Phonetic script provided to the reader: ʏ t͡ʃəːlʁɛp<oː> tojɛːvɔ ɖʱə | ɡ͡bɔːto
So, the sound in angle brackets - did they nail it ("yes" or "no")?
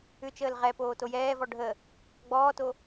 yes